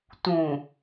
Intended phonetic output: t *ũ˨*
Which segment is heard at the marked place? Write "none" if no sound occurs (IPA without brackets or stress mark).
ũ˨